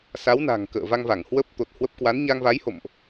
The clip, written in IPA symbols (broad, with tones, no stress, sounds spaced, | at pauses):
s a˨˦ w n a̤˨˩ ŋ k ə̰ː˧˨ v a˧ ŋ v a˧˩ ŋ h w ə˦˥ p̚ t̪ o˨˩ t̚ h w ə˦˥ p̚ k w a˨˦ n ɲ a˧ ŋ v a˨˦ j h o̰˧˨ m ʔ